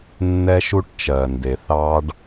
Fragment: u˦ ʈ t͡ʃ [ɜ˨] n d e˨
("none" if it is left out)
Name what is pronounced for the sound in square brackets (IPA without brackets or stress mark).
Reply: ɜ˨